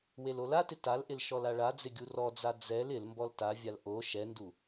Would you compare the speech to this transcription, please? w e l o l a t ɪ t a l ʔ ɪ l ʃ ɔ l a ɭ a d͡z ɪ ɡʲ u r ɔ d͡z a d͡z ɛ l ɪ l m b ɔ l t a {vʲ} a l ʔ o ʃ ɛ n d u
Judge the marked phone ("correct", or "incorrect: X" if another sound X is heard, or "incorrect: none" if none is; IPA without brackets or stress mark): correct